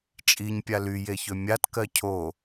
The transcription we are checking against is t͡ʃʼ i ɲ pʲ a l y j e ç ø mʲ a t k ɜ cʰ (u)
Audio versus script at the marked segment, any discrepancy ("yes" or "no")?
yes